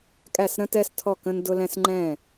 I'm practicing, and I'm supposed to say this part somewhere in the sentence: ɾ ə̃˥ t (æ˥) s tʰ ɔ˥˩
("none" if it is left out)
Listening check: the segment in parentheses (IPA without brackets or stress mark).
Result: ɛ˥